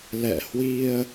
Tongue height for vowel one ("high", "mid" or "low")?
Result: mid